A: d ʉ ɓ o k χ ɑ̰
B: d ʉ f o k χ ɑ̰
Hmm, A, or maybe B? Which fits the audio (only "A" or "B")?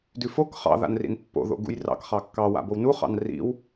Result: B